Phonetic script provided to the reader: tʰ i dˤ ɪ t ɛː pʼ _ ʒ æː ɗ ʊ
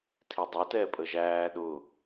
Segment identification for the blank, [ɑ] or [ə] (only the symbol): ə